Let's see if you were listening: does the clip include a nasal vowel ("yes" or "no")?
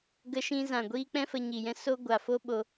yes